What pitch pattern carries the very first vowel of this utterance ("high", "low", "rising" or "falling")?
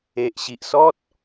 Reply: low